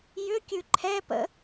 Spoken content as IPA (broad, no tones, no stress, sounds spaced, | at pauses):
j ʏ kʲ ʉ ǃʰ ɛ p ə̰